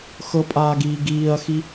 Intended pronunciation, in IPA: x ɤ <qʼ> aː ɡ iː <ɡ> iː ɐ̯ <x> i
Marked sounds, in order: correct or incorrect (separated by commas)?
incorrect, correct, correct